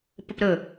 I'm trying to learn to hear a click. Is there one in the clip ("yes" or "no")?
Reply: no